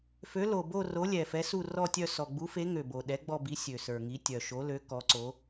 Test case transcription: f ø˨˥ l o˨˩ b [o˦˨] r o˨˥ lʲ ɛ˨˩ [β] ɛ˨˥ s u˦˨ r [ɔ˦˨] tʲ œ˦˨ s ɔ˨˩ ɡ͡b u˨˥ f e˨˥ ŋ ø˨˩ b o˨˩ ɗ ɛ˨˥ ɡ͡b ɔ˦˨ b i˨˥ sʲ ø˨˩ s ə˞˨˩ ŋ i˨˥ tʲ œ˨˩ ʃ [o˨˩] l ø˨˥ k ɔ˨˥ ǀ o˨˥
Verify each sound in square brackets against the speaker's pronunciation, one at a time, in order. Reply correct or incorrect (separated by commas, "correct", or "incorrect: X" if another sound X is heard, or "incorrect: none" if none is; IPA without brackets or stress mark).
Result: correct, incorrect: f, correct, incorrect: o˨˥